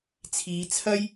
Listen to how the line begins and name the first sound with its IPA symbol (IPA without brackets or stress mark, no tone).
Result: t͡sʰ